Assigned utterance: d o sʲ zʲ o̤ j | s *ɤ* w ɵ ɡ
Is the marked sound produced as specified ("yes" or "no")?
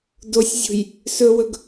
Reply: no